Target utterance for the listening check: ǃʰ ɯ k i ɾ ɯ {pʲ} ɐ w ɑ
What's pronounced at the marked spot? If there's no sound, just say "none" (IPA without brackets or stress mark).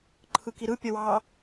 pʲ